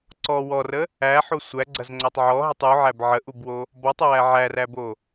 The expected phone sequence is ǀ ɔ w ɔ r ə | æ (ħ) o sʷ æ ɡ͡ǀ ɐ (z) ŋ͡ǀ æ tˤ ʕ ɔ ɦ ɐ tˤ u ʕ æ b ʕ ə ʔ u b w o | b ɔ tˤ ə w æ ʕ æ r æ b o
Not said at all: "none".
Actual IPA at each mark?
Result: ħ, z

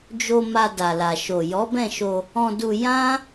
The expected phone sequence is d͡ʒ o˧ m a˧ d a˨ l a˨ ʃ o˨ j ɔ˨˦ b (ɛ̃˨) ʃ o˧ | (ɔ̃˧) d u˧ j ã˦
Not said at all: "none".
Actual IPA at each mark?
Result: ɛ̃˦˨, ɔ̃˧

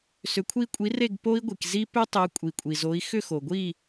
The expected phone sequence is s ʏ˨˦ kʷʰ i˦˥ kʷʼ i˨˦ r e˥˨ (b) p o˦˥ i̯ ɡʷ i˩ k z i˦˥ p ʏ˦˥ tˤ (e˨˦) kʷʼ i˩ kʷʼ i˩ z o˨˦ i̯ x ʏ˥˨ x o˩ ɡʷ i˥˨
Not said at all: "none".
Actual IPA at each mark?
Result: ɡ, e˨˦

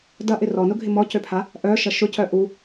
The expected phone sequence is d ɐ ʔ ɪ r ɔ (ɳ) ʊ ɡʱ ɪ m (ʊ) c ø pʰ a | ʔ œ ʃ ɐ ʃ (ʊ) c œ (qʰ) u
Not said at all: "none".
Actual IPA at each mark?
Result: n, ɔ, ʊ, ʔ

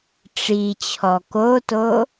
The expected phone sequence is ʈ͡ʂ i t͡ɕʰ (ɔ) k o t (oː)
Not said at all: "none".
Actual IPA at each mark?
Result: ɔ, o

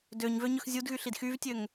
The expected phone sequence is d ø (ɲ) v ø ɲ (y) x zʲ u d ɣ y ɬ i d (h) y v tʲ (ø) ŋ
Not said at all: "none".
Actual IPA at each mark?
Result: ɲ, ø, x, ø

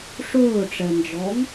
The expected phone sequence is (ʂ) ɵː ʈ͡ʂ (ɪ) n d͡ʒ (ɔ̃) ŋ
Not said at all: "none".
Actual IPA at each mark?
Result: ʂ, ɛ, ɔ

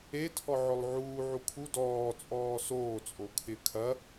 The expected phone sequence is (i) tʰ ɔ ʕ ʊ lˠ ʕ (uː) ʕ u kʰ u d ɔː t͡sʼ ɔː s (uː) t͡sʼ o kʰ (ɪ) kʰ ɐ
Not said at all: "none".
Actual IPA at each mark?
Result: e, uː, oː, ɪ

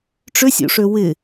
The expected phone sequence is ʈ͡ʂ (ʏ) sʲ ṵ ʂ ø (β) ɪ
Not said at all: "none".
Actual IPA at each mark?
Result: ʏ, w

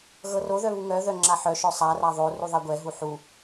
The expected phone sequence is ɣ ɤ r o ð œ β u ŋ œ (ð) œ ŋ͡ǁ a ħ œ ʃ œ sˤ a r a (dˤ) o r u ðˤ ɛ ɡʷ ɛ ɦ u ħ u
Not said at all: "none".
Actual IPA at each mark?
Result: ð, ðˤ

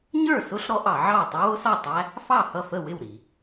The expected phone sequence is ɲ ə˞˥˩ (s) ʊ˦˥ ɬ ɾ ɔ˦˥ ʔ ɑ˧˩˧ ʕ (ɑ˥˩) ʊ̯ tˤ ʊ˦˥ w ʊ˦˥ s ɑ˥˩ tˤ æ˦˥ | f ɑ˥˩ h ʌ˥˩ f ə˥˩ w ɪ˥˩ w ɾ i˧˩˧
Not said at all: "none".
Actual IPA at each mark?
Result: s, ɑ˥˩

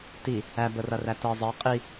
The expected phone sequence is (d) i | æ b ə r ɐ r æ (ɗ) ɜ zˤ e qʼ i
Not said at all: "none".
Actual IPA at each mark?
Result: t, t

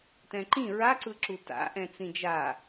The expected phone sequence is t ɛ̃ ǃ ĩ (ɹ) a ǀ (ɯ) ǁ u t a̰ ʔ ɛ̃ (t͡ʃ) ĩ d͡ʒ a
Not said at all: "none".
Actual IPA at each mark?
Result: ɹ, ɯ, t͡s

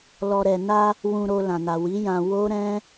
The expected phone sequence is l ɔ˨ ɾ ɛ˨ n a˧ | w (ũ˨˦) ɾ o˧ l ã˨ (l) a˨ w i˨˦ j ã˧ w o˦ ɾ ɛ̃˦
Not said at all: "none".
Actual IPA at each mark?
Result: ũ˧, n

